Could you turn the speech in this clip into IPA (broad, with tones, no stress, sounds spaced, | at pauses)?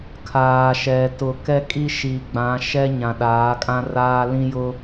kʰ aː˨ ʃ ɛ˨ t ʊ˨ k ɛ˦ kʼ i˦ ʃ i˨ ɡ͡b ã˨˦ ʃ ɛ˦ ɲ ã˨ ɗ aː˨˦ kʼ ã˦ r aː˦ l ĩ˦ j ʊ˦